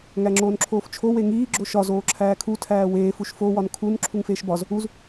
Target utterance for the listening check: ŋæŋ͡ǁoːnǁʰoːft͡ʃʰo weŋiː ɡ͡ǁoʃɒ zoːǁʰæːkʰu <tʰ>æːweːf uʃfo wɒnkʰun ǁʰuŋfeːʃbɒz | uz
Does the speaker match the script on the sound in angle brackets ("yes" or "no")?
yes